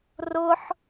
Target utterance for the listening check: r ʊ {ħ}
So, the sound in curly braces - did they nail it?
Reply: yes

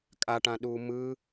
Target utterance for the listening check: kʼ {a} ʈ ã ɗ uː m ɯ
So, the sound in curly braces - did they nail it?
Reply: yes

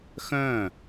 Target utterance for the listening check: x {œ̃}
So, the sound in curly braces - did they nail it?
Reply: yes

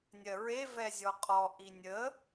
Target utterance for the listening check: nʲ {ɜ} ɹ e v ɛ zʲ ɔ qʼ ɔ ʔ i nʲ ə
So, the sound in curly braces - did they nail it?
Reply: yes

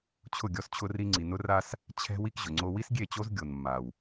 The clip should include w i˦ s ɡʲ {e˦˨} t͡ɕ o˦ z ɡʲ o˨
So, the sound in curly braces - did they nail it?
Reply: yes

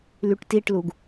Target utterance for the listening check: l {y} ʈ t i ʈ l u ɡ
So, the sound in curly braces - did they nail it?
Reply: yes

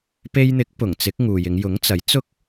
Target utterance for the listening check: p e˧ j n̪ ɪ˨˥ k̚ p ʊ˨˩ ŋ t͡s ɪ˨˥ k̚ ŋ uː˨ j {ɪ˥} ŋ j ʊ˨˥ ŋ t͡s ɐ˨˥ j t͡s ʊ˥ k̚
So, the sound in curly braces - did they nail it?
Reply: no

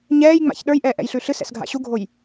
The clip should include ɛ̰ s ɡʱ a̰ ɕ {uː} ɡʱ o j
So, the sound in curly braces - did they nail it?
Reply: no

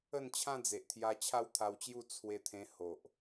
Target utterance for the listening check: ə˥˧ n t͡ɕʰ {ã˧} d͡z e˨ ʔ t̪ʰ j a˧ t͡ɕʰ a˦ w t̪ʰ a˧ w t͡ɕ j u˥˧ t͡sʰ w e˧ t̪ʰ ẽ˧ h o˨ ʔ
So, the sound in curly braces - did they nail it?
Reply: no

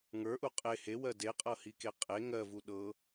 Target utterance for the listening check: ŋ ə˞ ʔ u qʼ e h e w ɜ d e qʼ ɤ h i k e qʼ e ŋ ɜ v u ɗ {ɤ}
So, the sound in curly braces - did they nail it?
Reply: yes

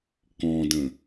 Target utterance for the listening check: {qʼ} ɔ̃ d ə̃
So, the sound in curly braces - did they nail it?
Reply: no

